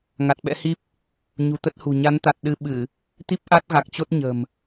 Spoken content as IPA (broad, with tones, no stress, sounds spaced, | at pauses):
ŋ a˨˩ t̚ ɓ ɛ̰˧˥ h i˦˥ p̚ | ɲ ṳ˨˩ t̪ ə˦˥ t̚ h ṳ˨˩ ɲ a˨˦ n t̪ a˨˩ t̚ ɗ ɨ˧ ɓ ɨ˧˩˨ | t̪ i˦˥ p̚ ʔ a˦˥ t̚ ɣ a˨˩ k̚ t͡ɕ o˦˥ t̚ ɲ ə̤˨˩ m